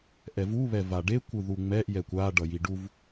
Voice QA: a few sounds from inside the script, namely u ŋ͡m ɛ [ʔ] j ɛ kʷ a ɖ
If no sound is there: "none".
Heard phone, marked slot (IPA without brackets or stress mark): ʔ